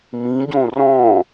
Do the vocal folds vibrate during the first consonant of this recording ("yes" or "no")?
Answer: yes